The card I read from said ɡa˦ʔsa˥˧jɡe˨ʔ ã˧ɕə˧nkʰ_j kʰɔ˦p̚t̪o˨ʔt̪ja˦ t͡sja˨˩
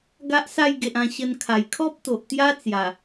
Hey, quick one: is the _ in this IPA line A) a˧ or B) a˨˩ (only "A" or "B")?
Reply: B